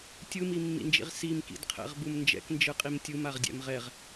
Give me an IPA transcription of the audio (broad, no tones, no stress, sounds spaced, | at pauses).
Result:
tʲ ɯ m i mː ḭ n d͡ʒ ḭ ʁ s i m k ḭ d qʰ ɛ̰ ʁ b u m n d͡ʒ ɛ̰ k n d͡ʒ ɯ qʼ i m tʲ ɯ m a ʁ dʲ ɛ̰ m ʁ ɛ ʁ